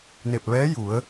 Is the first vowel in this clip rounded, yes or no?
no